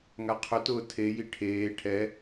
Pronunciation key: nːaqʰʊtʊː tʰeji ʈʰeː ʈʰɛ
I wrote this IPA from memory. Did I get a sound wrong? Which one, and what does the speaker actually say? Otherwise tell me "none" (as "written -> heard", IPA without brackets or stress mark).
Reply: nː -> ŋ